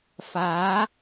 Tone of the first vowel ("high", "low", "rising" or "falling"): rising